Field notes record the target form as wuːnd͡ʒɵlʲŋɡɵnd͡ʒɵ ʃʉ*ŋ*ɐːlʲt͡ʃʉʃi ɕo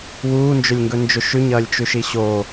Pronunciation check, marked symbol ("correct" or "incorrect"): incorrect